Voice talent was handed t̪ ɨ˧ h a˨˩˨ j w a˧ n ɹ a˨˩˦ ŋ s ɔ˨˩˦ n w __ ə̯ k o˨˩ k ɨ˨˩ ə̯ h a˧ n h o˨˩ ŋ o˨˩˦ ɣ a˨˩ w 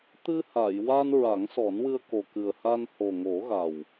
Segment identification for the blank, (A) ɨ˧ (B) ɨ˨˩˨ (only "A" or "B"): A